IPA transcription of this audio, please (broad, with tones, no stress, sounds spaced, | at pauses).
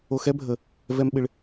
o˧ x ɛ˦ bʱ ə˧ | v ɛ˦ m ɓ ɪ˦ ɭ